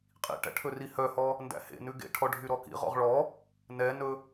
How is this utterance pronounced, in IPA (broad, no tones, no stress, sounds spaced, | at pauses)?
qʼ ḭ ʈ æ̰ ʈʰ ɵ r i h œ h ɔ | n d æ̰ h ḛ n ʉ ɡ ḛ ʈʰ ɔ ɖʱ y ɾ ɔ k ḭ ʁ ɔ̰ ʁ ɭ ɔ | n ɛ n ɵ